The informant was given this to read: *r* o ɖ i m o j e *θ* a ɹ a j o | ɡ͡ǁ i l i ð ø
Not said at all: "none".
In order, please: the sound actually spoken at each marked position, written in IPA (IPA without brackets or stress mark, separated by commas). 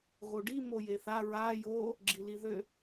ɣ, θ